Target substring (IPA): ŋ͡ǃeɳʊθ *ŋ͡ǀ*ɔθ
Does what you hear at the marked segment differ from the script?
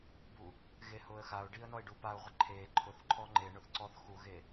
yes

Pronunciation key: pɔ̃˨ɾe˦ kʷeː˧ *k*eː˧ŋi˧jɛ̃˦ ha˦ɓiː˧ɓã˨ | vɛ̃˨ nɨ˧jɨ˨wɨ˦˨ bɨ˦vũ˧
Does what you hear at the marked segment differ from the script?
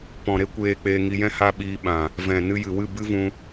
yes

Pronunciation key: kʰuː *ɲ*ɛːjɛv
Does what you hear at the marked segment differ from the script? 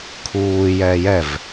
yes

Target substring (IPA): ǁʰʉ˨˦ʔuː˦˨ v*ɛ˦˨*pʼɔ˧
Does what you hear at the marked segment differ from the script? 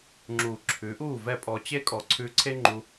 no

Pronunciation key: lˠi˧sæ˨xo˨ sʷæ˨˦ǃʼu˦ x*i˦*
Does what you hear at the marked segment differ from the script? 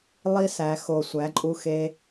yes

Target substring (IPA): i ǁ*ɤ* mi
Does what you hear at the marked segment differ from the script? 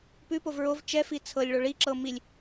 no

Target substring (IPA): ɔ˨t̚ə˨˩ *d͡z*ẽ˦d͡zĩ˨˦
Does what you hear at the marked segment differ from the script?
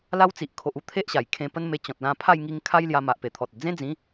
no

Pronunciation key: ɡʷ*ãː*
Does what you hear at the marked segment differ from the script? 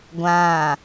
no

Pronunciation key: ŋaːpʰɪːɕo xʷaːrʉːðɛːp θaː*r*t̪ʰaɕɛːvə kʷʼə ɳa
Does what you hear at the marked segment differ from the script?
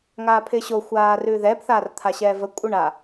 no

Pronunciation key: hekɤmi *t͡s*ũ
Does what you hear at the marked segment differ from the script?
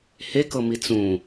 no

